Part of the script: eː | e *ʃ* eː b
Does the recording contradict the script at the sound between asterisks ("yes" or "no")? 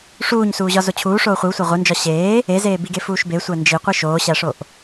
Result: yes